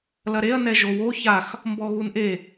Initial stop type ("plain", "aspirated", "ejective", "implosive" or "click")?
plain